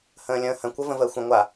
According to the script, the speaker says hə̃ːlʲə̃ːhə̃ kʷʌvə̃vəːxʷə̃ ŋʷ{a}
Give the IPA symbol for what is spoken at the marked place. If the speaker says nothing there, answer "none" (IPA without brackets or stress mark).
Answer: a